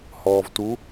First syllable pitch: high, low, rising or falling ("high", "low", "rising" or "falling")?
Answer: low